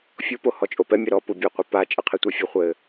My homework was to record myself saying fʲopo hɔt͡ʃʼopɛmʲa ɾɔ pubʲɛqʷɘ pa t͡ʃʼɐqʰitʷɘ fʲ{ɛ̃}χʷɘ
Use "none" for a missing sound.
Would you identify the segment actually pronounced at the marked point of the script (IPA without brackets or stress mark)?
ɛ